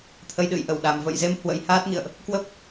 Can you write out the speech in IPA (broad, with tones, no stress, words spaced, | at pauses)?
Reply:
t̪ʰə˧jɗɨ̰˧˨jʔə˧˩wɗa˨˩m və̰˧˨jze˧m hwə̰˧˥jhaː˦˥t̚ŋḭ˧˨ə̯ʔ | kwə˦˥p̚